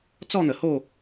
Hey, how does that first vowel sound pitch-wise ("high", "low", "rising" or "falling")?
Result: falling